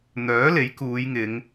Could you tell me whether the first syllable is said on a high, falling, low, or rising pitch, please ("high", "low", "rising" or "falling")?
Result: rising